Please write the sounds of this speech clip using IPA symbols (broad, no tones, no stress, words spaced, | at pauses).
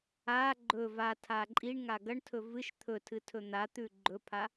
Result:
a ɡ͡ǃɵ vatʰa ǃʼiɳŋa ɡɐɳtʰɵ vɨʃ t̪ʰɵtʰɨ tʰɵn̪at̪ʉ ɡ͡ǃɵpʰa